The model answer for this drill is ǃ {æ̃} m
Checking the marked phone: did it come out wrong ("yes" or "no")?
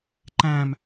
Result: no